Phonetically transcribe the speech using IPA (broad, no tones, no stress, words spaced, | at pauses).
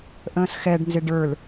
ʔə̃ːsxɛɖ nzɪɖə˞l